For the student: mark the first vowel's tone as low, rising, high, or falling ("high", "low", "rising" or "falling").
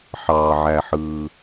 low